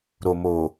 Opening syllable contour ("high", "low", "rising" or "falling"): low